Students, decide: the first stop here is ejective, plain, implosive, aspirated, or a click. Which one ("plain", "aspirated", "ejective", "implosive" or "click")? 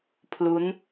aspirated